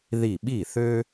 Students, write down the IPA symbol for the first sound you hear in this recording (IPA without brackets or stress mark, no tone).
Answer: ð